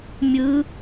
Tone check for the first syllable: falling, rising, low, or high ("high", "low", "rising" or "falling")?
rising